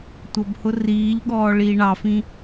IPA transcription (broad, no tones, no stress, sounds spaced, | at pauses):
tʷ ʌ b h ʊ r iː ʎ ɠ ɔː ɭ iː ɳ ɑ f ĩ